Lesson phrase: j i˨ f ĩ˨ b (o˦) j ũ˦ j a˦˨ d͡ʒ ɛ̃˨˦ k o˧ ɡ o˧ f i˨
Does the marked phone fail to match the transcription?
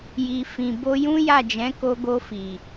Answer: yes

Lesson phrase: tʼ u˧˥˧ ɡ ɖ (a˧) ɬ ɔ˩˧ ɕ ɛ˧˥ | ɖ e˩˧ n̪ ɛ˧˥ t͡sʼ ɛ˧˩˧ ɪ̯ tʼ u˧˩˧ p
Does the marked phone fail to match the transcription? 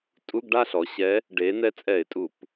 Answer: yes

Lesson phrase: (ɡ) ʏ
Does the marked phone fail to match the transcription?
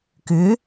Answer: yes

